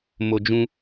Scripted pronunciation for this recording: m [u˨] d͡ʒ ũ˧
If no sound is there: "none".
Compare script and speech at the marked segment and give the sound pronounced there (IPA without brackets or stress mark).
o˨